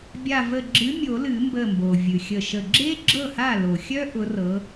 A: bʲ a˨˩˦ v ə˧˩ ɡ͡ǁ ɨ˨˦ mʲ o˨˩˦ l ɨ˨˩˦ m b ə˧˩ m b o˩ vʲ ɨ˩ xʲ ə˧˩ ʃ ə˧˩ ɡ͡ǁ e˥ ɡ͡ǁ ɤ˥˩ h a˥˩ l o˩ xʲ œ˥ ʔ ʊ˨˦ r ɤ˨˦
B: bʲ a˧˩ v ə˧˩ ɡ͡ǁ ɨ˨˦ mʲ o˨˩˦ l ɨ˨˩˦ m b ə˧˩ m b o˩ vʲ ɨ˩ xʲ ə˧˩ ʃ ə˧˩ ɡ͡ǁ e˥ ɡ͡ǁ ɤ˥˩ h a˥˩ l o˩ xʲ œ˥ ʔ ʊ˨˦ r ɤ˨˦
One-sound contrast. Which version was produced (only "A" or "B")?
B